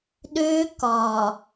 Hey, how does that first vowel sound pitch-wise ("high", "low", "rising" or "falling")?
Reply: high